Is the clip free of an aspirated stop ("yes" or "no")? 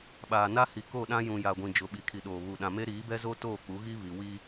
no